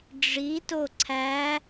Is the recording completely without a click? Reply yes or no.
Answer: no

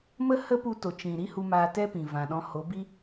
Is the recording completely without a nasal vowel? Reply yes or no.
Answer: no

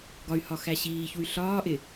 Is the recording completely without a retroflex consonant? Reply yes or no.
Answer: yes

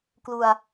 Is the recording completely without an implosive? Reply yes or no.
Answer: yes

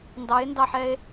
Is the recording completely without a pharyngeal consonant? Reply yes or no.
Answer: no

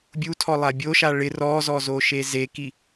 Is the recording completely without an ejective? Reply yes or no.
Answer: yes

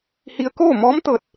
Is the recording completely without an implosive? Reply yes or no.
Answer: yes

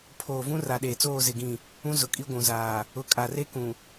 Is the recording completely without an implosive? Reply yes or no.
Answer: no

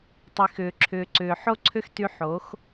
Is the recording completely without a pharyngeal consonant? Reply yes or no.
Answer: no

